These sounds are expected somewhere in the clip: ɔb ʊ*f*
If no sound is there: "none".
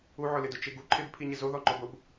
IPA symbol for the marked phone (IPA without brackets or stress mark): b